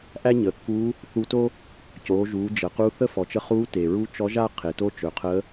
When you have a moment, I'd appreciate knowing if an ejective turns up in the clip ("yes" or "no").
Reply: no